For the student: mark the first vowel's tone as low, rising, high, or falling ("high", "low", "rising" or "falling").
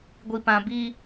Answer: low